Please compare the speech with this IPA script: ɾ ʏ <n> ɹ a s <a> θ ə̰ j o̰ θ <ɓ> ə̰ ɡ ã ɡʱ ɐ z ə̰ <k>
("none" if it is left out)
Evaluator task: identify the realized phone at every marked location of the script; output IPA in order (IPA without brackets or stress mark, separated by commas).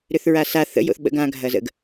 θ, a, ɓ, ɡ